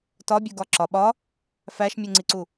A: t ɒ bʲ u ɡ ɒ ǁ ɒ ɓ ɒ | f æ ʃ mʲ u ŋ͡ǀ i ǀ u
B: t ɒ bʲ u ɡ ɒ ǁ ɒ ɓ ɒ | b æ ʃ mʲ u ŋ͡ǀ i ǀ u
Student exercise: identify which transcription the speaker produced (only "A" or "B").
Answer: A